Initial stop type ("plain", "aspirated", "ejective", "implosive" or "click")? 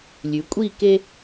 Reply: ejective